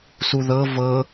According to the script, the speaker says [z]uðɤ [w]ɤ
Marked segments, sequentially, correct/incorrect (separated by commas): incorrect, incorrect